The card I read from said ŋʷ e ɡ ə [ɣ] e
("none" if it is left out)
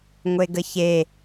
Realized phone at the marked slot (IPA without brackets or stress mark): ç